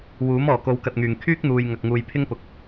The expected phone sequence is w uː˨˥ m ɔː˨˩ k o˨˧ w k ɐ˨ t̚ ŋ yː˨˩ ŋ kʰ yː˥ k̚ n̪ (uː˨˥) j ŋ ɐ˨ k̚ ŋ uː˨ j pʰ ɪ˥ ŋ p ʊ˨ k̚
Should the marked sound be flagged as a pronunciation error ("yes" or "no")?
yes